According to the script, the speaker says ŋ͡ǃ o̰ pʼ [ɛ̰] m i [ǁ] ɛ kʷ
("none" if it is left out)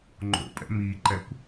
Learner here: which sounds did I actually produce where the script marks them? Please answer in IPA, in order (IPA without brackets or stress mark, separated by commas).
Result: ɛ̰, ǃ